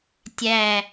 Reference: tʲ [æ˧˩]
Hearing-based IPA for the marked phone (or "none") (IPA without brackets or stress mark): æ˧˩